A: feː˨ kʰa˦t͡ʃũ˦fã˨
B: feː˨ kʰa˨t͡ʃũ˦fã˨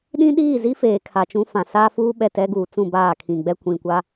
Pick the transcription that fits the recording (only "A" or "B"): B